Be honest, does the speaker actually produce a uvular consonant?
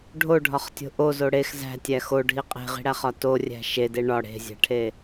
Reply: yes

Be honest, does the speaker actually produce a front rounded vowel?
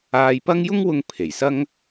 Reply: no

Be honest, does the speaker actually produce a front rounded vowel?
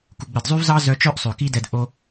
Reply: yes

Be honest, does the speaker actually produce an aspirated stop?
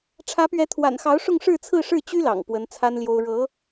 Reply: yes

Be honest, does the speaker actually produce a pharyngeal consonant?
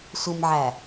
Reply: yes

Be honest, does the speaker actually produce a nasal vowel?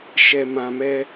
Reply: yes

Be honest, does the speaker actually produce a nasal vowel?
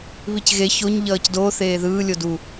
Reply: no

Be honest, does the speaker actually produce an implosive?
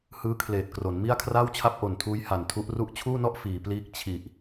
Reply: no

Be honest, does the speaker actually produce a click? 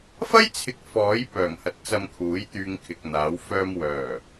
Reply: no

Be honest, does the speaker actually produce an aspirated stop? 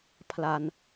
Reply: yes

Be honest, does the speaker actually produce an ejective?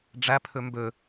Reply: no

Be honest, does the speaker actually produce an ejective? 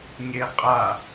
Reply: yes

